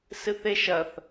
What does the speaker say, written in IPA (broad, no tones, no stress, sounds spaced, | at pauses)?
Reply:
s ɨ θ e ʃ ɐ θ